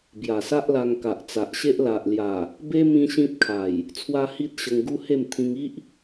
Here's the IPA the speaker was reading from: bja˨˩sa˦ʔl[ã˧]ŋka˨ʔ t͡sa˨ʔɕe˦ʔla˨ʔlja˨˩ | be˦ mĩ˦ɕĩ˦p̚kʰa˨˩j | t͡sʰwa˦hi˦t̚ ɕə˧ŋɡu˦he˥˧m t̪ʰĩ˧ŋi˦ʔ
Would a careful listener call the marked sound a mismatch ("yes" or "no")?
yes